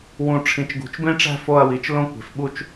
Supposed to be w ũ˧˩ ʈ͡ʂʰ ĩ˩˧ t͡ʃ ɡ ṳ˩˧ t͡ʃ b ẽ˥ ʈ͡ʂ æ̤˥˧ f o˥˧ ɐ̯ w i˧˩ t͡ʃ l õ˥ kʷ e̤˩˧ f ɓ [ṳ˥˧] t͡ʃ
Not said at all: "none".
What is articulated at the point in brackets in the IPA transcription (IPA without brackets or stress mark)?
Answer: u˥˧